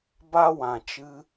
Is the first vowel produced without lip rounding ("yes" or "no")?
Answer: yes